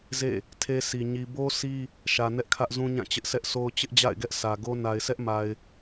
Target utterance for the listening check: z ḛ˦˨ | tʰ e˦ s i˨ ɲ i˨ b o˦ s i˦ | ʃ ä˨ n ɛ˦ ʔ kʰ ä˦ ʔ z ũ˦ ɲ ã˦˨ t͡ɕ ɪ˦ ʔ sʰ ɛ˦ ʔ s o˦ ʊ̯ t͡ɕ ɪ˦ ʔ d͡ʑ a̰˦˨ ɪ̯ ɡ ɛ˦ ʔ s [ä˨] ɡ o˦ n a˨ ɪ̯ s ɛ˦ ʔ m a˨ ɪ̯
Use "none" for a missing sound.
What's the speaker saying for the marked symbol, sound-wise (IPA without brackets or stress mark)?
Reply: ä˨